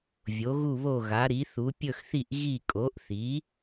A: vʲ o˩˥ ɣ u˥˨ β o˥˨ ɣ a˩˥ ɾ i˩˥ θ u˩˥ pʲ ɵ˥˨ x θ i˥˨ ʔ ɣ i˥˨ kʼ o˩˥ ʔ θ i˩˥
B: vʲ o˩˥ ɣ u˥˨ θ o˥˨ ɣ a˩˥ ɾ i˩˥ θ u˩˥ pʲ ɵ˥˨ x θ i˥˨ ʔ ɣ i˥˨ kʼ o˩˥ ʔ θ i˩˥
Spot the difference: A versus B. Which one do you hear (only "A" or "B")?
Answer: A